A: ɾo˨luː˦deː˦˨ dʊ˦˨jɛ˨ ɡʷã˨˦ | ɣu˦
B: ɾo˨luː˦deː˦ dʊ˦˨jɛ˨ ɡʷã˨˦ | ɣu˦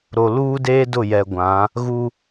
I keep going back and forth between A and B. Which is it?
B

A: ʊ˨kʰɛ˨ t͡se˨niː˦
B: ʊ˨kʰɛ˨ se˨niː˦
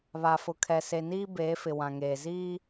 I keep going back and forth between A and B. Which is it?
B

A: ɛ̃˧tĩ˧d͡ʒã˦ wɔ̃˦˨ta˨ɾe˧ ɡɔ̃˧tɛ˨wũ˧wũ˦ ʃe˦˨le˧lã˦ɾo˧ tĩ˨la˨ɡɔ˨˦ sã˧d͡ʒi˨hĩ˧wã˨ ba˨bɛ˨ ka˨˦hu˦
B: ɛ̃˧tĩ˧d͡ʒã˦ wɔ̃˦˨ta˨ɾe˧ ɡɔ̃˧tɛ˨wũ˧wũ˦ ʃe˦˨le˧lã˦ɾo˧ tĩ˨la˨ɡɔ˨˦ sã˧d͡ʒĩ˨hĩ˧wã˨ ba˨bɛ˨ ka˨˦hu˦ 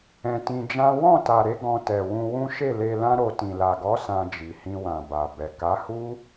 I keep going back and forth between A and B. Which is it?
A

